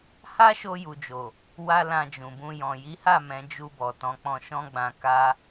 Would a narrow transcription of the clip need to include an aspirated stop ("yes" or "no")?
no